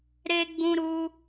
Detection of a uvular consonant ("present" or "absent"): absent